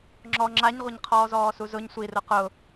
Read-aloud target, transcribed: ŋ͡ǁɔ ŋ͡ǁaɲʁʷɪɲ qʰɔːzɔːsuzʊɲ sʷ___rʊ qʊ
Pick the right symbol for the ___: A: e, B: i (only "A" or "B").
B